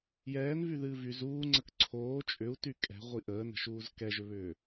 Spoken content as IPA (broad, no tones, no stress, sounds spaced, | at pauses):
j ɛː n v y ð ɨː v y z uː ŋ͡ǀ ə k ǀʰ oː t͡ʃʼ ʏ u̯ t y kʼ ɛ̤ ʁʷ i ʔ əː n ə̤ ʃ uː z k ɛ ʒ ʏ β ʏː